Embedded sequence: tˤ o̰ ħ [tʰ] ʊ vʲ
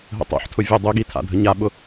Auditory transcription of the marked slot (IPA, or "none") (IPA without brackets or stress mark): tʰ